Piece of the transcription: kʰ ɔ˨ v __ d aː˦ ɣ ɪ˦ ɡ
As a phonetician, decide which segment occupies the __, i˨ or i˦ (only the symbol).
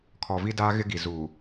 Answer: i˦